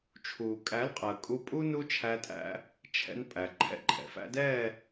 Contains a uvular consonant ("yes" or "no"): yes